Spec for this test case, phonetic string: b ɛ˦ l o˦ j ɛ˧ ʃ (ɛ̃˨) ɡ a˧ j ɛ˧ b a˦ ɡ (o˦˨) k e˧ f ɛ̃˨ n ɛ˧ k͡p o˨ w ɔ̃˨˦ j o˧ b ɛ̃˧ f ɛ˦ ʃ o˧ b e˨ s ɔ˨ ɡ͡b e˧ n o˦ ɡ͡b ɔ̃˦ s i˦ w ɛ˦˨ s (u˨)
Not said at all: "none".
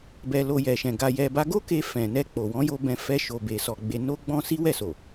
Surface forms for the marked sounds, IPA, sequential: ɛ̃˧, o˦, o˨

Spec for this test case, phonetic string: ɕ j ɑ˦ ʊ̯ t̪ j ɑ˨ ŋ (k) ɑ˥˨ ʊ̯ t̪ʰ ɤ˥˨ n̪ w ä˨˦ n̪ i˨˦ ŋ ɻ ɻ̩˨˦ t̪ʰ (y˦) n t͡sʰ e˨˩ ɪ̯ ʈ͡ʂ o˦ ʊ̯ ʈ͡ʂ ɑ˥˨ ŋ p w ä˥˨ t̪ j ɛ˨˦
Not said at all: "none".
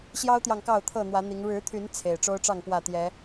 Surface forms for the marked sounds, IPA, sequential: k, y˨˦

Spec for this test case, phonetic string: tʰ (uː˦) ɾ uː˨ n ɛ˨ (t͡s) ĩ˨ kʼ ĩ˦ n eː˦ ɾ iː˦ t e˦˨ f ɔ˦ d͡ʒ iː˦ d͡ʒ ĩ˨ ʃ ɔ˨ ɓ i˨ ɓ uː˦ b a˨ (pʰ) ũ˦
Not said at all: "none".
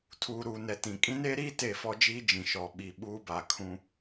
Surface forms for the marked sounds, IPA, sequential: uː˨, t, kʰ

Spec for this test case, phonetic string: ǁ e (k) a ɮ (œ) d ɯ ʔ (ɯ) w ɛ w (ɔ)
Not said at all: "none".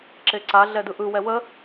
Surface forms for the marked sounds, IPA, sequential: ǀ, ɛ, ɯ, ə

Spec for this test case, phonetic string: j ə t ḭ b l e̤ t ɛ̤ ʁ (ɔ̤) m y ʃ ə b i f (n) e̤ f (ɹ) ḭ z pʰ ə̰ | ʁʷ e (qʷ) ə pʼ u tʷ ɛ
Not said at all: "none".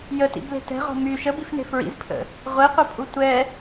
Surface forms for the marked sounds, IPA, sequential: ɔ̤, n, ɹ, qʷ

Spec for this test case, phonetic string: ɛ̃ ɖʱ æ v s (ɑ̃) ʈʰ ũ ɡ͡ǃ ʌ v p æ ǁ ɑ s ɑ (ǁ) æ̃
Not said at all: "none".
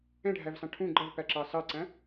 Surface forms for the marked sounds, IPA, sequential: ɑ̃, ǀ

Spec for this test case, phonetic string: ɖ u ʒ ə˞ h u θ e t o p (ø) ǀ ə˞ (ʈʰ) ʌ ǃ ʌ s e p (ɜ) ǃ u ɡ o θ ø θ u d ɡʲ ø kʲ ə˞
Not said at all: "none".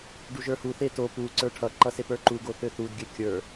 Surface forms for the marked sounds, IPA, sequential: u, ʈʰ, ə˞

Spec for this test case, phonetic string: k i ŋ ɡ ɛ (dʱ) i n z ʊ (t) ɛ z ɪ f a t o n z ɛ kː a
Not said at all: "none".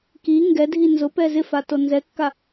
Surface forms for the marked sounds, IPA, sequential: dʱ, p

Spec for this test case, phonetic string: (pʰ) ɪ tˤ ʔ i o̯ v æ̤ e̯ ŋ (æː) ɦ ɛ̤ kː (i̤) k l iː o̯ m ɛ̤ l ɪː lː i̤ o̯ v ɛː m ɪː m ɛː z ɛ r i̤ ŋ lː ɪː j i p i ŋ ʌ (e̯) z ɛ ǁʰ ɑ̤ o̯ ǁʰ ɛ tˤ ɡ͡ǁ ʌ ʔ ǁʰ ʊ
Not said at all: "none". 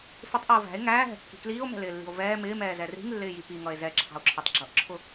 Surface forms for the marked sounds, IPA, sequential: f, æː, i̤, e̯

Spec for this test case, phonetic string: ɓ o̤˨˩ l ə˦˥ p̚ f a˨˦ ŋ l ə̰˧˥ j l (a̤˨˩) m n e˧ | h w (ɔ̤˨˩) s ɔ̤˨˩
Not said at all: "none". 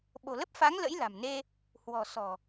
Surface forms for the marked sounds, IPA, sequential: a̤˨˩, ɔ̤˨˩

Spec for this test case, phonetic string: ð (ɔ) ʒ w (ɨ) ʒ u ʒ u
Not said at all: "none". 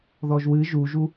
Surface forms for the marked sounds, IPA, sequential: ɔ, ɨ

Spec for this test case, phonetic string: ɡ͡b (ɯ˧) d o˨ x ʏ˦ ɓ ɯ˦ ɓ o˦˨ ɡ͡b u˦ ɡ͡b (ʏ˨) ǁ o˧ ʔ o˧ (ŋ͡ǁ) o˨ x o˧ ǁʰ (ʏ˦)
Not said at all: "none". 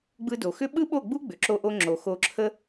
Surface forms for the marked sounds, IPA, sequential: ɯ˧, ʏ˨, ŋ͡ǁ, ə˦

